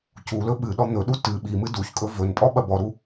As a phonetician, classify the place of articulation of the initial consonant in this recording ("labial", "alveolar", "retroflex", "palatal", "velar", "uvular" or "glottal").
palatal